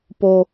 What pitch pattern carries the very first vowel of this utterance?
high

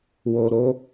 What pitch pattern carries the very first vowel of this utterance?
low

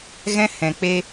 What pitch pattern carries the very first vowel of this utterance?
high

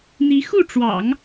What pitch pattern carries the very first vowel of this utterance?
rising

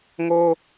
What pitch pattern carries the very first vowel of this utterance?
high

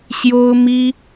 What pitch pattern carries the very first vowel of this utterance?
high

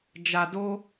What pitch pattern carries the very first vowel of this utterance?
low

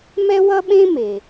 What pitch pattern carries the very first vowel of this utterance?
high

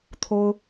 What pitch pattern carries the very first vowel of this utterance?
high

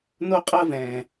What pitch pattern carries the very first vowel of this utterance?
high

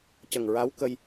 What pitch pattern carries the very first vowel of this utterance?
low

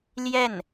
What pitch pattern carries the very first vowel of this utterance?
falling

